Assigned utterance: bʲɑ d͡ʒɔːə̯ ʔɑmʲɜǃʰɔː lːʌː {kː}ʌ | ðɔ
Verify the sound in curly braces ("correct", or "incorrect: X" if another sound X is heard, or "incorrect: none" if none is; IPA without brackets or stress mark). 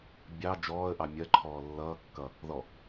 correct